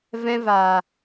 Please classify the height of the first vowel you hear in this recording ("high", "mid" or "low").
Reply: mid